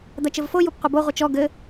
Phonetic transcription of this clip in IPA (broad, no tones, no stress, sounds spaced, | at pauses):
d̪ ɐ t͡ʃ ɘ v f o j u p qʷ ɘ b o ʁʷ ɨ t͡ʃ ɔ ɡ ɘ